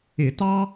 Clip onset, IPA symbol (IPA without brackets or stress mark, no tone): ɪ